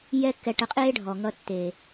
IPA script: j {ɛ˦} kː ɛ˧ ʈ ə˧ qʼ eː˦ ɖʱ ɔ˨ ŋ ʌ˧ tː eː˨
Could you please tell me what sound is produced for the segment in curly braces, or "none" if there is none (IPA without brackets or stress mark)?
ɛ˦